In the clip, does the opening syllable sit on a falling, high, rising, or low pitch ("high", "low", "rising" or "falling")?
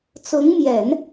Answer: rising